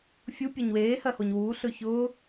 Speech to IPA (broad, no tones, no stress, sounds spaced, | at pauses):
fʲ u pʲ ɜ ɲ w eː h ɜ h o ɲ w uː ɬ ɵ ç ʊː